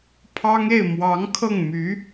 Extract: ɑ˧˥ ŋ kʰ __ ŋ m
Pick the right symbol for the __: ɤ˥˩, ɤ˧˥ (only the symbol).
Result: ɤ˥˩